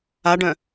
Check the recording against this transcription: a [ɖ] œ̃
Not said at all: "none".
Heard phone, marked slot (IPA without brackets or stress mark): ɖ